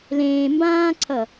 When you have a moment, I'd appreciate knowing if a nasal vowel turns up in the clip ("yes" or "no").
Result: yes